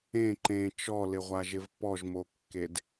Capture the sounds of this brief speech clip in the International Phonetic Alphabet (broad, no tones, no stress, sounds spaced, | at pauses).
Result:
ẽ ǃ ẽ t͡ʃ ɔ l ɪ ʁʷ a ʒ ɪ v p ɔ ʒ m o kː e d